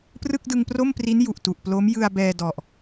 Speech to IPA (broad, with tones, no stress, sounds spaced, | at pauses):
p r ɯ˥˩ k̚ d ɯ˧ ŋ p r o˥˩ m p r i˦˥ n j u˨˩ ʔ t u˨˩ ʔ p l o˦˥ m j ɯ˧ a̯ b ɛː˧ d ɔ˨˩ ʔ